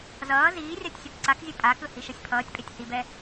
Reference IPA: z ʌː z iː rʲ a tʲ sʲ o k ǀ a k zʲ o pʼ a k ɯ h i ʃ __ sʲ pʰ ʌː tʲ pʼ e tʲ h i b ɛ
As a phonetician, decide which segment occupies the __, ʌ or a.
ʌ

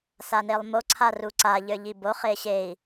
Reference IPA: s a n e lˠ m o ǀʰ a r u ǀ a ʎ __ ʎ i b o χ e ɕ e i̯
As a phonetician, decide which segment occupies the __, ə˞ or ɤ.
ə˞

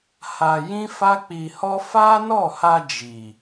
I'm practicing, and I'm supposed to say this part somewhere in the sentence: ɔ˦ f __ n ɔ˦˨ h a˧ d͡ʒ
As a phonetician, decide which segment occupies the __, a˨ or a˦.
a˦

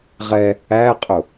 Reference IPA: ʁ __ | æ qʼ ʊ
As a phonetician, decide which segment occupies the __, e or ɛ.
ɛ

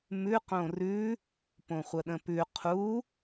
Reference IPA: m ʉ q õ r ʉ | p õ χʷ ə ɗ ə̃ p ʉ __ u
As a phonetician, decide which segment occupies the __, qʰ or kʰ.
qʰ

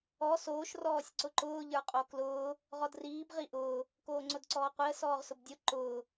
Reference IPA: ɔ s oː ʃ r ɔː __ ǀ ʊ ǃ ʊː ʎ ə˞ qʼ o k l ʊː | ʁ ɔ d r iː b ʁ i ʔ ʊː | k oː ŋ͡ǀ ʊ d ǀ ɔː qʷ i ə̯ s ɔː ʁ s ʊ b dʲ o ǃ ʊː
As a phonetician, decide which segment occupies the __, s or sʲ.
sʲ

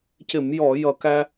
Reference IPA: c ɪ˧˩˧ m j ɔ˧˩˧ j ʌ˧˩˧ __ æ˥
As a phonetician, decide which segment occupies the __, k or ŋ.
k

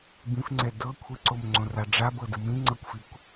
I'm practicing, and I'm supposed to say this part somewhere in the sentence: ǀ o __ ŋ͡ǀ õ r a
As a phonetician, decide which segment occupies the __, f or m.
m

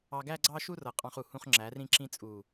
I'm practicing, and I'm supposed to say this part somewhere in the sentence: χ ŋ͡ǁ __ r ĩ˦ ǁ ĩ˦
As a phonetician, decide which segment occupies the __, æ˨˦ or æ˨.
æ˨˦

